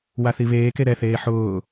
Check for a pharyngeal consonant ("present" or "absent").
present